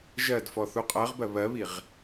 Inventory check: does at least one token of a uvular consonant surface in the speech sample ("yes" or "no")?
yes